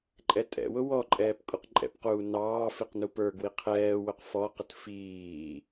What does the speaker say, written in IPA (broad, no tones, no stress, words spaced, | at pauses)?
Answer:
ǃʼɛtʼɛ̰wʊ wɔǃʼɛːp kʼuqǃʼɛ̰pquː nɑːfiq nupə˞ɡwi qʰɛːwʊq fɔqət fiː